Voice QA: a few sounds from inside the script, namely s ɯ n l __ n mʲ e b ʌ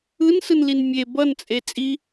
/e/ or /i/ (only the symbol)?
i